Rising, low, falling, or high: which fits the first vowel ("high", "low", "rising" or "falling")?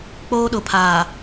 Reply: high